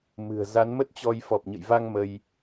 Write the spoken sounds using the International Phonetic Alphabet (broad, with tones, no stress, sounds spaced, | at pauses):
m ɨ̤˨˩ ə̯ z a˨˦ n m ə˦˥ t̚ t͡ɕ ɔ˧ j f ɔ˨˩ p̚ ɲ ə̰˧˨ j v a˧ ŋ m ə˧ j